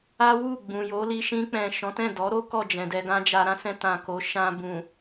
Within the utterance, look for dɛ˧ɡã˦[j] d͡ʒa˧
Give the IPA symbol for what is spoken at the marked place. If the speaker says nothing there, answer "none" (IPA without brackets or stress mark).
none